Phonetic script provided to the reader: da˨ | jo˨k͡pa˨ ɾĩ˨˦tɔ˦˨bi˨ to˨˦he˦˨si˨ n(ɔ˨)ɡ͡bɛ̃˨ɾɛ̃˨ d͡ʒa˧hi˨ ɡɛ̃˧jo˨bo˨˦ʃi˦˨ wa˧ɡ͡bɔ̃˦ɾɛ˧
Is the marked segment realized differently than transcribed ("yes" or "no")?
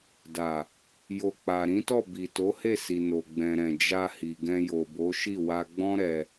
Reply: yes